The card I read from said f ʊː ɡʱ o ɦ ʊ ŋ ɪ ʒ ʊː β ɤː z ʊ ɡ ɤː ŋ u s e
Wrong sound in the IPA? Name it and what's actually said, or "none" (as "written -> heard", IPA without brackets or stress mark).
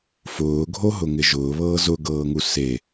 none